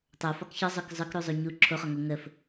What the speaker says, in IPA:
tˤ o f ɒ k ç ɒ zˤ ɵ k zˤ œ k ɾ u zˤ o ɲ u ǁʰ o χ ɒ ŋ o ŋ ə f

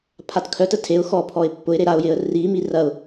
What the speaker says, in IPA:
pʰ a t kʰ œ t ə tʰ e ʊ̯ x ɔ pʰ ɔ ɪ̯ pː ʊ ɪ̯ ɾ e ɾ a ʊ̯ j ɪ ə̯ r i m i r ɐ ʊ̯

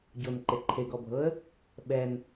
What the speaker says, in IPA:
ɟ o n ǃ e ǃʰ e ɡ ɔ bʱ ɤ ə̯ | ɓ ɛ n

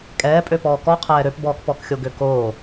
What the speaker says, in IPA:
kʼ ɛː pʼ ø p ɔː k ɔ qʰ ɛː ɾ ø p b ɔː k p ɔ k xʲ o ɡ ø k oː

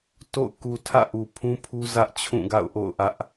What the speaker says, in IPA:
t o̰˦˨ ʊ̯ k u˨ tʰ ä̰˦˨ ʔ u˨ pʰ ũ˦ pʰ u˦ z ä˦ ʔ t͡ɕʰ ũ˦˨ ɡ a̰˦˨ ʊ̯ ʔ o̰˦˨ ʊ̯ ʔ ä˦ ʔ

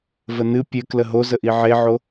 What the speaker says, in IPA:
v ə n ɨ pʲ ɘ k l ə ɦ o z ə ʔ i ʕ e ʕ o

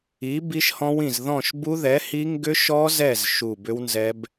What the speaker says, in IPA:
i˨˥ b i˦˥ ʃ h ɔ̃˦˥ w ĩ˦˨ z ð ɔ̃˦˨ ʃ b u˦˥ ð ɛ˨˥ h i˦˥ ŋ ɡ ʏ˦˥ ʃ ɔ˦˥ z ɛ˦˨ z ʃ u˦˨ b ʏ˦˥ w n z ɛ˦˥ b

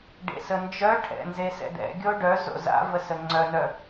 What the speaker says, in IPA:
ɖ ḛ s ə n d͡ʒ œ ʈʰ ɛ̰ n z e s ɛ̰ d ɛ̰ ɡʲ o ɖ œ z o̰ z a̰ v ə s ə ŋ͡ǀ œ n œ

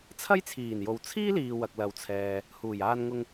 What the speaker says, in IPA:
t͡sʰ ɐ˥ j t͡sʰ iː˨˩ n j o˨ w t͡sʰ iː˥ l iː˨ w ɐ˨ k̚ l ɐ˨ w t͡sʰ ɛː˨ | h uː˨˩ j aː˧ n ŋ ʊ˧ ŋ

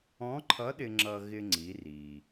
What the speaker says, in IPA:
ɔ̃˧˥ ǃʰ ʌ˧˥ ɗ ɪ˧ ŋ͡ǁ ʌ˧ ɣ ɪ˧ ŋ͡ǀ i˩˧ r i˩

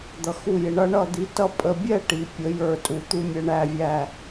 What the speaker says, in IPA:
d̪ ʌ˧ x u˥˧ j ɪ˧ ɳ ʌ˥ ɳ ʌ˥˧ d̪ i˧ t ʌ˥˧ pʼ ə˧ bʲ ɛ˥˧ ʈ i˩˧ pʲ ə˩˧ j ə˞˧˩ tʼ u˩˧ t̪ u˧ mʲ ə˩˧ ɳ æ˧˩ vʲ æ˧˩

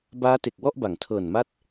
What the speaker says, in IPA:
b aː˦˥ t e˨˩ k̚ w ɔ˥˩ ʔ b a˩˦ ŋ tʰ ɤː˨˩ n m a˥˩ t̚

